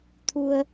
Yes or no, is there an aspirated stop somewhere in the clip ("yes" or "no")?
yes